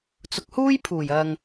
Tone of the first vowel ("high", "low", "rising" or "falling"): low